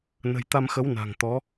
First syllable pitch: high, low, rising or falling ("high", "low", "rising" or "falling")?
low